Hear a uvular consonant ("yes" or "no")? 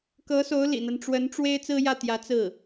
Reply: no